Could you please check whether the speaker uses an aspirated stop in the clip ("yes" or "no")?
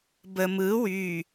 no